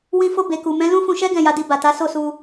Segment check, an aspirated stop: absent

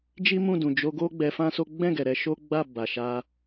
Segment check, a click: absent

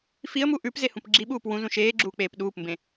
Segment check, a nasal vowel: present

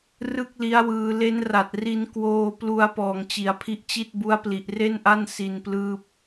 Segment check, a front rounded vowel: absent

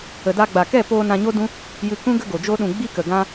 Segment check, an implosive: present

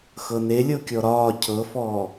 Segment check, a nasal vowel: absent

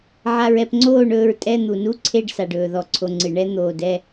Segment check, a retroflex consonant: present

